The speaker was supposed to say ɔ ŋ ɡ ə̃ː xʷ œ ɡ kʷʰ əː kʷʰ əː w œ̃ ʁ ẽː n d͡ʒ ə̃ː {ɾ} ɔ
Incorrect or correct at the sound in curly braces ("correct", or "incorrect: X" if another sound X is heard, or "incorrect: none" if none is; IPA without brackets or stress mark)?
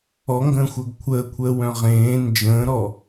correct